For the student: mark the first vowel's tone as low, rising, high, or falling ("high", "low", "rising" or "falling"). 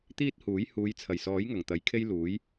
high